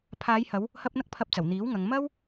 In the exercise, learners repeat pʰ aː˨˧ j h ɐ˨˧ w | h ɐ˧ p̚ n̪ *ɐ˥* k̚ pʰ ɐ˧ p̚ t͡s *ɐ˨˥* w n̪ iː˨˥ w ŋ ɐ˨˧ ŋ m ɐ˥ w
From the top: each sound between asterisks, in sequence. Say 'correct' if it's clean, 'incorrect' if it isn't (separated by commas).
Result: correct, incorrect